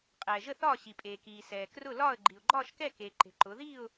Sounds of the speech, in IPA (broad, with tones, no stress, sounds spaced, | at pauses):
qʼ ɛː˨ ʒ ə˥˧ θ ɒː˥˧ ɕ i˨ pʼ eː˨ k iː˨ s ɛː˨ k r ʊ˥˧ l ɒː˥˧ ə̯ ɡ͡ǃ i˨ ʊ̯ ɡ͡ǃ ɒː˥˧ ʃ k ɛ˥˧ k eː˨ ǃ e̤˨ ǃ ʊː˨˦ ð iː˥˧ ʊ̯